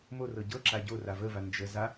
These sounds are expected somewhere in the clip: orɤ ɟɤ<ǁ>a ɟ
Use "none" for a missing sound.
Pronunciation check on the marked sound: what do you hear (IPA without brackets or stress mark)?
ǁ